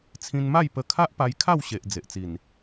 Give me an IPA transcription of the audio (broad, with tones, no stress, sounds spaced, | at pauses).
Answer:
t͡sʰ ĩ˧ n m a˥˧ j p ə˧ kʰ a˦ ʔ p a˧ j kʰ a˥˧ w ɕ e˨ ʔ d͡z e˨ ʔ t͡s i˨˩ n